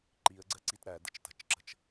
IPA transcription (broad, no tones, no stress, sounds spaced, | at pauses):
ǃ i ə̯ ɡ͡ǀ ɜ ǀ i t ɾ æ d ə̰ t͡ʃ t ə̤ t͡ʃ ǁ ə̤ t͡ʃ